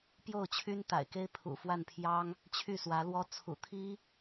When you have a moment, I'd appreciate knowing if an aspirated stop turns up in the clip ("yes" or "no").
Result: yes